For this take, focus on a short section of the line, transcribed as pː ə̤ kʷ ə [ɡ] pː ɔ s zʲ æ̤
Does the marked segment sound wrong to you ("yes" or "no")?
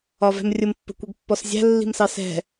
no